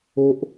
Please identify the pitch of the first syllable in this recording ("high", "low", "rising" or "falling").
high